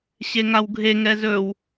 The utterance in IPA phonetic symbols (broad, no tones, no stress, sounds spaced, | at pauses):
ɕ e ŋ a w ɡʱ e ŋ ɛ z ɵ w